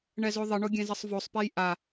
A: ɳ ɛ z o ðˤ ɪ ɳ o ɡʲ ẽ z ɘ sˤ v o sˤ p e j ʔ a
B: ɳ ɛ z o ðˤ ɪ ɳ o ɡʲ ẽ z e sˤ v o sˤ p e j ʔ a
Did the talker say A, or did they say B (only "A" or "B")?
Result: A